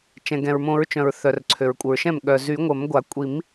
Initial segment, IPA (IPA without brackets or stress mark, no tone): t͡ʃ